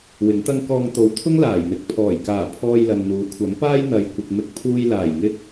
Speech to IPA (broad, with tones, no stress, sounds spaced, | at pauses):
w ɪ˨˥ ŋ t̪ ɐ˥ ŋ k ɔː˧ ŋ t̪ o˨ w t̪ʰ ʊ˥ ŋ l aː˨˩ j n̪ ɪ˨˥ k̚ pʰ ɔː˨˩ j k aː˨˩ pʰ ɔː˧ j l ɐ˨ n n̪ uː˨˥ kʷʰ ɐ˨˥ m p aː˥ j n̪ ɐ˨ j kʷ ɪ˨ k̚ m ɪ˧ k̚ pʰ uː˧ j l aː˨˩ j ŋ ɪ˧ k̚